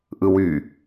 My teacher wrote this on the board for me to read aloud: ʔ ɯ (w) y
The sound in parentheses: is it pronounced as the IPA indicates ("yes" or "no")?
yes